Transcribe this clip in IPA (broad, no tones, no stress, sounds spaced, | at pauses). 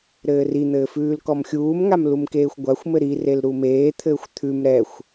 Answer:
ɾ ɘː r i n̪ ɘː f ʉː l k ɔ m xʲ uː m ŋ a m l u m k eː xʷ ɡʷ a xʷ m ɘ ɾ i r e l ɾ u m eː t̪ʰ ɘː xʷ t̪ʰ ʉ m ɾ ɛ xʷ